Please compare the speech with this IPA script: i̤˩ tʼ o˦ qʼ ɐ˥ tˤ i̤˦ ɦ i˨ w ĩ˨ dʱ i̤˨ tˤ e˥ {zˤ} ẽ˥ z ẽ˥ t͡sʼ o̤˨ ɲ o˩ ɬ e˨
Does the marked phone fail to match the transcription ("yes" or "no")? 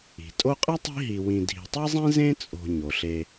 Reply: no